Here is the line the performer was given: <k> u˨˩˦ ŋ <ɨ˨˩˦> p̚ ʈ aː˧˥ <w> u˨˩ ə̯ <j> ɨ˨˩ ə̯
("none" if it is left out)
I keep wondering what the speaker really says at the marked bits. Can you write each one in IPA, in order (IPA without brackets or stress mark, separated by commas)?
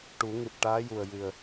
ʈ, ɨ˨˩, j, j